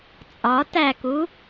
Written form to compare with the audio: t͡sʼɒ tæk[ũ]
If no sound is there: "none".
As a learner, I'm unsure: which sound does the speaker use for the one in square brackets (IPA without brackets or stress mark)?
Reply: u